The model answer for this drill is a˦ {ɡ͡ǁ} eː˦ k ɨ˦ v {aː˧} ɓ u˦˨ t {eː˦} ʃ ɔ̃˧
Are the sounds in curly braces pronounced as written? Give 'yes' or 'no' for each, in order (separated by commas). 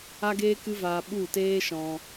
no, yes, yes